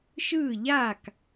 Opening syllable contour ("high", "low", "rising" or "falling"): falling